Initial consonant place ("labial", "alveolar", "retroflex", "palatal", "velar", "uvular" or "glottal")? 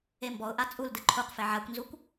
labial